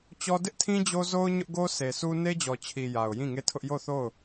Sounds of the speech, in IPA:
t͡ɕ ɔ˦ d ɪ˦ ʔ tʰ ĩ˦ d͡ʑ o˦ z o˦ ʊ̯ ɲ ʊ˦ ʔ ɡ o˦ s e˨ sʰ u˦ n e˦ d͡ʑ ɔ˨ t͡ɕʰ i˨ j a˨ ʊ̯ j ĩ˦˨ ŋ e˦˨ tʰ ʊ˦ ʔ j o˦˨ θ o˦˨ ʊ̯

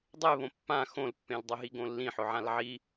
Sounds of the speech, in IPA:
dˤ e β õ pː ã x õ l pː ẽ l dˤ ʊ ɦ i ɡ õ lː ĩ ħ ʊ ʕ ã l ʕ i

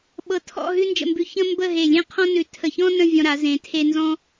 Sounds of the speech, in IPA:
ɓ ɤ˧ tʰ ɔ̰˥˧ ɦ ʉ˥ n d͡ʒ ə̰˧ m b ʉ˧ ç ə̃˥ m b ə˥˧ ɦ e˧˩ lʲ ẽ˥ qʰ ɔ̃˥ n ʉ˧˩ tʰ ə˧˩ ç ɔ̃˥ n ə̃˥˧ vʲ ɔ̃˧ ɾ a˩˧ z ẽ˩˧ tʰ e˧ n z ɔ̃˥

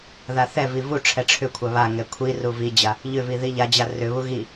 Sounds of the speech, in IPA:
ð a θ ɛ v i v u ʈ͡ʂʰ ɛ ʈ͡ʂʰ ʏ kʷʰ a β a ŋ ɛ kʷʰ i r u v i d͡ʑ a | ʎ ʏ v i ð i ʎ a d͡ʑ a r ʏ β u ɣ i

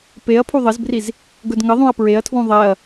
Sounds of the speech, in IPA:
p e ɐ̯ pʰ u ðˤ ə z b r i z | ɡ ɵ d ŋ ə ðˤ ũ ɐ̯ p ɹ e ɐ̯ tʰ w ũ ðˤ ɛ ɐ̯

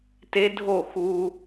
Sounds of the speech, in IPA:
t e˦ dʱ o˦˨ x u˦

